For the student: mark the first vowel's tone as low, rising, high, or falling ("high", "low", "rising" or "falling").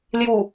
low